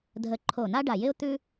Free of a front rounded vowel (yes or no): yes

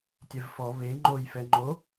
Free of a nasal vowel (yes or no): yes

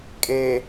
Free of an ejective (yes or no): no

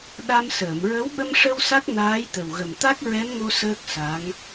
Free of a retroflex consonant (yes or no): no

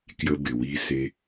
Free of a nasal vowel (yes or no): yes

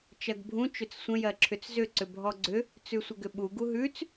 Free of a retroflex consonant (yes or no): yes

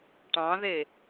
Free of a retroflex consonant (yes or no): no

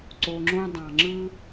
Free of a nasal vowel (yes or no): no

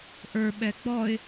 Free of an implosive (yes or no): no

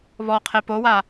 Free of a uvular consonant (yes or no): no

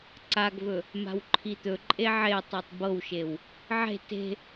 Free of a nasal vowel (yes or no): yes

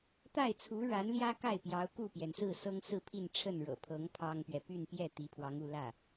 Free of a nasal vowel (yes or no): yes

